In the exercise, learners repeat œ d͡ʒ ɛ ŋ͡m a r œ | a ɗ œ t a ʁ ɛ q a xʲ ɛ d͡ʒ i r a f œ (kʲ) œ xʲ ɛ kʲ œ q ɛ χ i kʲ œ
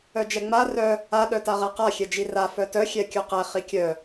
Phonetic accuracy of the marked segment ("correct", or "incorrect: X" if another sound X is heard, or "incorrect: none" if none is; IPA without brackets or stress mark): incorrect: t